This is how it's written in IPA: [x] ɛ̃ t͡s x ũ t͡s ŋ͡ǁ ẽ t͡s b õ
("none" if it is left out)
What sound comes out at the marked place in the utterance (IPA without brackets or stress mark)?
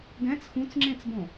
ɡ